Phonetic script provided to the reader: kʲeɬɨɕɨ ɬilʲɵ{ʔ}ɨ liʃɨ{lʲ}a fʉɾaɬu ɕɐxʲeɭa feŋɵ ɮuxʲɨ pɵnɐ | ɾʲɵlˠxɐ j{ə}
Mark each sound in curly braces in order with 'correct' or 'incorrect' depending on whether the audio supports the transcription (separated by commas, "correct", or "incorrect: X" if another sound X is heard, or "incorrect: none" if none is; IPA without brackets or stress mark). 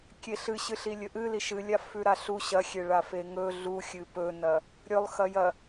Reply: correct, correct, incorrect: ɐ